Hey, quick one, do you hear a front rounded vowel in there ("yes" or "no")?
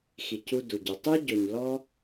yes